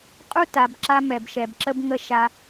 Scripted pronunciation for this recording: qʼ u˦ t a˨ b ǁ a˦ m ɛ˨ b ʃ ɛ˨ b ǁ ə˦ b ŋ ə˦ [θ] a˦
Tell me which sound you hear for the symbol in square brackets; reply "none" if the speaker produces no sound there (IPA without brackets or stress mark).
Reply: ʃ